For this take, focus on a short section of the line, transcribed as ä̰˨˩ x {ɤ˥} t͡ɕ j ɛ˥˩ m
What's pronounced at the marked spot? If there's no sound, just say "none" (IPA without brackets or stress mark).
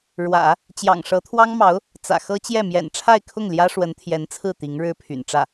ɤ˥